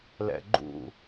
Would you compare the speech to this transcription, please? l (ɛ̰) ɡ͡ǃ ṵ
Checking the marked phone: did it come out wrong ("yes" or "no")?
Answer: no